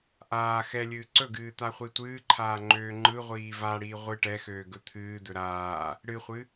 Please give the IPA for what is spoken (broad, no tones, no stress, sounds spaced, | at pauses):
ʔ aː x ɛ lʲ ɨː ǀ ɵ ɡ ɨː t̪ a χʷ i tʷ ɨː ǃʰ aː ŋ͡ǃ øː ŋ͡ǃ ɯ ʁʷ iː v a ɽ iː ʁʷ ɨ ʈ ɛ x øː ɡ ɵ t̪ʰ ɨː d̪ ɵ ɾ aː | ɽ ɨ χʷ ɨ